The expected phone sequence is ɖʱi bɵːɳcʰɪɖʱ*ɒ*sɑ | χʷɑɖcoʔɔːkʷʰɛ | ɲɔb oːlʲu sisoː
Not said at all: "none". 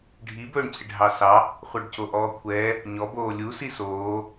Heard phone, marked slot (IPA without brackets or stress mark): ɑ